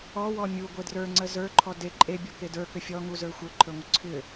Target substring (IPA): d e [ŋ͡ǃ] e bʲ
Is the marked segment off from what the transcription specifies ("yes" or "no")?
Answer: yes